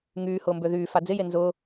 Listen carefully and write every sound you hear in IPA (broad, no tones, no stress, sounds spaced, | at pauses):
ŋ yː h ʊː m b ø ð yː f a d͡z ɪ j e n z ʊː